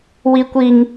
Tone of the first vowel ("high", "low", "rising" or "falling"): high